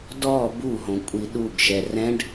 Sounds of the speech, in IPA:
d ɔ b u ɦ õ kʷʼ i ɗ u ɡ ʃ ɛ r ɛ̃ ɖ

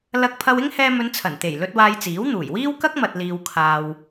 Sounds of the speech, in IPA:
l ɐ˧ k̚ pʰ ɐ˧ w ɪ˥ ŋ h ɛː˧ m ɵ˨˧ n t͡sʰ ɐ˨˩ n t̪ e˨˩ j l ɵ˧ t̚ w aː˧ j t͡s iː˨˥ w n̪ uː˨˩ j w iː˥ w k ɐ˥ k̚ m ɐ˨ t̚ l iː˨ w kʰ aː˨ w

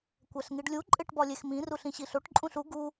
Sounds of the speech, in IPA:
kʷ æ ɬ ŋ i ɖ lʲ u ǃʼ e ʈ b ɒ lʲ e x m ĩ r u ɬ ĩ ɕ i ɬ o ʈ ǃʼ ũ ɬ u ɡ u

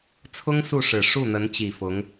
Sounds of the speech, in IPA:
t͡sʰ ʊ˥ ŋ s u˥˩ ʂ ɻ̩˨˩ ʂ u˥˩ n̪ ə˧˥ n t͡ɕ i˨˩ f ʊ˧˥ ŋ

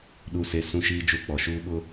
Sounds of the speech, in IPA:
ɗ u˦ s e˦ s ũ˦ ʃ iː˦ d͡ʒ u˦˨ k͡p ɔ˨ ʃ uː˦ ɓ ʊ˦

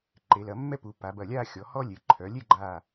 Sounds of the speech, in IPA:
ǃ e˩˧ l ɐ˩˧ mː ɛ˥ p u˩˧ p a˩˧ b ɐ˧˩ lʲ a˥˧ xʲ ɔ˩˧ h ɔ˥ lʲ e˩˧ ǃʰ œ˩˧ lʲ e˥˧ ɡ͡ǃ a˧˩

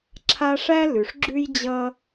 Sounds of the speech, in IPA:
ǁʰ a˦ ʂ æ˦ l ʉ˨ ʂ ɡ͡ǁ ʉ˥ j d͡ʑ ʌ˥

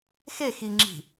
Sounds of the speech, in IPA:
x e x i ŋ͡ǁ i̤

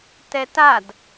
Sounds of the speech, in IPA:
t ɛ t a d

